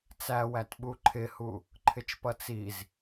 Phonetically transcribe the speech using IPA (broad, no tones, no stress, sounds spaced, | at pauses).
t͡s æ w æ t ɓ u ǃʰ ɪ h u | ǃʰ ɪ t͡ʃ p ʌ t͡s i z